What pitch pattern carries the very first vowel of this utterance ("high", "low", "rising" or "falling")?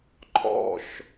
falling